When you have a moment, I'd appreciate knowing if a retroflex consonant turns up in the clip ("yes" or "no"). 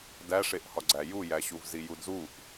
yes